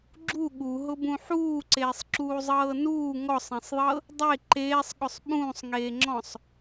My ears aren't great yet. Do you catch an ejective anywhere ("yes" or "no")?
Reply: no